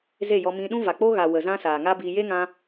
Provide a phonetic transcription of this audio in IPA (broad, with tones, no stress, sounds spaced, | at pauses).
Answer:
z e˦˨ j ɔ˧ m ĩ˧ ɗ ũ˦ v a˨ k͡p o˦ ɣ a˨ w ə˨ z ã˦ s aː˨ ŋ aː˦ b iː˧ j e˦ ŋ ã˧